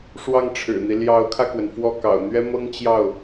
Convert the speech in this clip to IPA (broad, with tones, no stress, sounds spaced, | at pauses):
ʂ w ɑ˥˩ ŋ ʈ͡ʂʰ ɻ̩˨˩ n̪ i˦ l j ɑ˧˥ ʊ̯ kʰ ä˧ k w ə˩ n f w ɔ˥˩ k ɑ̰˨˩ ʊ̯ n̪ ɥ ɛ˥ m ɤ˥ ŋ t͡ɕ j ɑ˥˩ ʊ̯